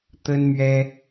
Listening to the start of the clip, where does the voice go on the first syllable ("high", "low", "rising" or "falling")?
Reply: high